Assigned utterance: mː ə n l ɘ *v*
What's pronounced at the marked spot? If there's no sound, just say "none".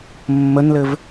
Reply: v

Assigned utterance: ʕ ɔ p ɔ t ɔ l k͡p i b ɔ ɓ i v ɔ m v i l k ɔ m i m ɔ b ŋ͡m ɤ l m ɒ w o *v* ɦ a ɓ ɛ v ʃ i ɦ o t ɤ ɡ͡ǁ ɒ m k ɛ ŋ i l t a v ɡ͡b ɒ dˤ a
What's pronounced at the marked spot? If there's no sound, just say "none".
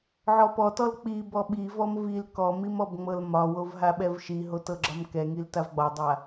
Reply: v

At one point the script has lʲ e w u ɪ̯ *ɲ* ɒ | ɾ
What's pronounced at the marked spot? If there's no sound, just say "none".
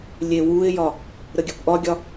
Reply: j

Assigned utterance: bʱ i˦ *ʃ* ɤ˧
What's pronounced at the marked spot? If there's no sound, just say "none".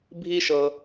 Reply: ʃ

